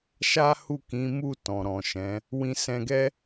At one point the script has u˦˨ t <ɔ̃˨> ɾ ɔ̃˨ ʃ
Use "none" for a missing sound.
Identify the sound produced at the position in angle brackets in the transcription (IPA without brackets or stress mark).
ɔ̃˨